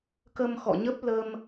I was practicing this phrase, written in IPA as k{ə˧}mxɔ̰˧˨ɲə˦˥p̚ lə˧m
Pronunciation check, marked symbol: correct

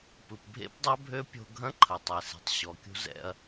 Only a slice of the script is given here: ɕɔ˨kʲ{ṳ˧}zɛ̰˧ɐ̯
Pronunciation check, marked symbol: correct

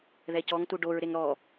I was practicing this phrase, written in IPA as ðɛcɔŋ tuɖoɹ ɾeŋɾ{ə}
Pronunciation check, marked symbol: incorrect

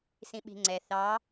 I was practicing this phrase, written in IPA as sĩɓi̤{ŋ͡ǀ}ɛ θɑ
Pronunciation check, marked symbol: correct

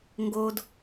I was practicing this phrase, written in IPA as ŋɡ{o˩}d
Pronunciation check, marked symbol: correct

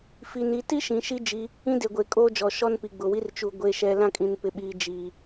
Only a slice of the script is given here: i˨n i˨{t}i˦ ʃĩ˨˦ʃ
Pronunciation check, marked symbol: correct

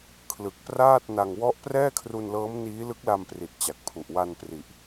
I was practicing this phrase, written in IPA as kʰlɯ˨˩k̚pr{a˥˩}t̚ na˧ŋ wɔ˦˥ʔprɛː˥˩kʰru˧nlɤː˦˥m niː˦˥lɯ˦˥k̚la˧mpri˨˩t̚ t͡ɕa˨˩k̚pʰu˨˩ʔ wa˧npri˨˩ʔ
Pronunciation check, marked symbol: incorrect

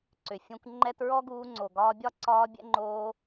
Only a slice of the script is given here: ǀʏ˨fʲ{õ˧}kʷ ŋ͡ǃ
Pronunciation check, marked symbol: correct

